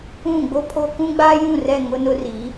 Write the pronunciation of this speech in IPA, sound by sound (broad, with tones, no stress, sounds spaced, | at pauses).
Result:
ũ˦˨ ɡ͡b o˦ pʰ o˦ k ũ˦ ɡ͡b a˦ j ũ˦˨ r ɛ˦˨ ŋ ʊ˦ n ʊ˦ r i˨˦